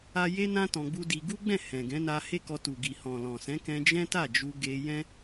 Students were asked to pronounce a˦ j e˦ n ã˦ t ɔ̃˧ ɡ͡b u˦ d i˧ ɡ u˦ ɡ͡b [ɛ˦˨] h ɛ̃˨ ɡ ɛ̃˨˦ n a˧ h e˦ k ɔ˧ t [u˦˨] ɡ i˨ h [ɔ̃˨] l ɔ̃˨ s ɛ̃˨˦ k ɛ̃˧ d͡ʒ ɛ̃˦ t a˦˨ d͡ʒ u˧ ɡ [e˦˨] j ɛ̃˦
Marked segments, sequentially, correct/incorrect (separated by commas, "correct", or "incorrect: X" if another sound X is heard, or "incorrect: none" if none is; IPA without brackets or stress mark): incorrect: ɛ̃˦˨, incorrect: u˨, correct, incorrect: e˧